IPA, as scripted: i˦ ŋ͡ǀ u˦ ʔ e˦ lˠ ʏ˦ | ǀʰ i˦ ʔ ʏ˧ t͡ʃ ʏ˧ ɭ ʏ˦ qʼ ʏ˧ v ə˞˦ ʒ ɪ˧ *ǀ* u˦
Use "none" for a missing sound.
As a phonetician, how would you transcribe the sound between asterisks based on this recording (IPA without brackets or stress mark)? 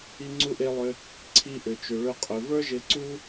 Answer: ǀ